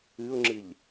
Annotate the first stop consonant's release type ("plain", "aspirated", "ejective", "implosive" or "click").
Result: click